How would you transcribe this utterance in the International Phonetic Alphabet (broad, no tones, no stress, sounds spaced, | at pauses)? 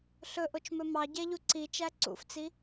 ɬ ɵ ʔ o t͡ʃ m ɵ m ɑ ɟ ɛ ʎ u ǀ i t͡ʃ æ ǀ ṵ f t͡s i